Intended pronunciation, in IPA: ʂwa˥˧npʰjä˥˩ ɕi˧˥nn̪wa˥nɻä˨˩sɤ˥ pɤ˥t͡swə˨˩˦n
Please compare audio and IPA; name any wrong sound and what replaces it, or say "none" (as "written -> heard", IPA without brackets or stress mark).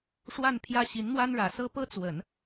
none